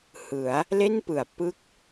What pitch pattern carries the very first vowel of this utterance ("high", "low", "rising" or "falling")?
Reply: rising